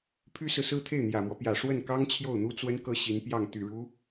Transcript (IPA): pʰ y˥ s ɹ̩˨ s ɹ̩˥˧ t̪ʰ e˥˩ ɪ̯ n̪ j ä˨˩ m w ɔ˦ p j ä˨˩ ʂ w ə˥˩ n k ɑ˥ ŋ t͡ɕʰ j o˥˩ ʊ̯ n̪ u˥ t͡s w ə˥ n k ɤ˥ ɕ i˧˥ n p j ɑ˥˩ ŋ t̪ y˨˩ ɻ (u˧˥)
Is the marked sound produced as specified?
yes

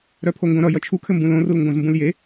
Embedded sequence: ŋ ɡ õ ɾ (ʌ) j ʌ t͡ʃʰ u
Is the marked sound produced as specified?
yes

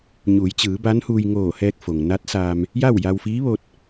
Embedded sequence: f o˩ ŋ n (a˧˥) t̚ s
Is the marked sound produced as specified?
yes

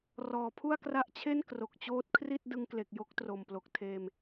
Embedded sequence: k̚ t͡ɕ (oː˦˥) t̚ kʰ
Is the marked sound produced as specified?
yes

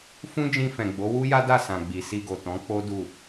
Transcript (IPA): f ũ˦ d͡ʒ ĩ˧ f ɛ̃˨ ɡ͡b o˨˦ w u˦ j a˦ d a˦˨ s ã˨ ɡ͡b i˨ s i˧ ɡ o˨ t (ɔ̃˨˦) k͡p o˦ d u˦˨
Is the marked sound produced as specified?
yes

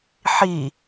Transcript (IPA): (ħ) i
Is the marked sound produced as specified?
yes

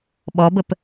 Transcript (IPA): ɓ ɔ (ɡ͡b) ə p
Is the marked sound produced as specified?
no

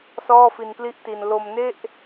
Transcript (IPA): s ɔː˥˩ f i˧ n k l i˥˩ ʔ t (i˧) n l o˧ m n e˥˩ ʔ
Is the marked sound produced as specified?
yes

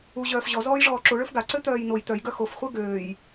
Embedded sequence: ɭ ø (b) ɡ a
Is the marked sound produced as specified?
no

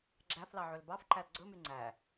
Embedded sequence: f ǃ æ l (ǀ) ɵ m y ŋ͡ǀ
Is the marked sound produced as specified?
no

